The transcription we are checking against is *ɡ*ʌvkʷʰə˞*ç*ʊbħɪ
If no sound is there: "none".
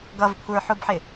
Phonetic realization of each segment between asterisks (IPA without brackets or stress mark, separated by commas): ɡ, ħ